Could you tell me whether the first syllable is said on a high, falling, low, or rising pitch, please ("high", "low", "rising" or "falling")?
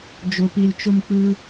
low